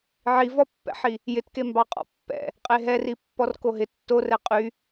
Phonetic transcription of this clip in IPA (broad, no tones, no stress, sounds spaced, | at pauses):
ʕ i v ɔ pː ɛ̰ ħ i | j ɪ t k e m b ɑ qʼ ɔ̰ pː ɛ̰ | qʼ e ɦ ɛ r i pː ɔ r k o ɦ ɪ tː o r ɛ qʼ y